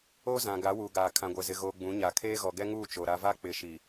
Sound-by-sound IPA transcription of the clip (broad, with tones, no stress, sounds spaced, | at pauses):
o˦ z ã˨ ɡ a˨˦ w uː˨ ɡ aː˨ kʰ ã˨ ɡʷ ɛ˨ z ɪ˨ ɣ oː˨ ɡ͡b ũ˨˦ ɲ a˨ kʰ eː˦ ɣ ɔ˨ ɡ ɛ˦ ŋ uː˦˨ t͡ʃ o˨ ɾ a˦ v a˦ k͡p ɪ˨˦ ʃ i˨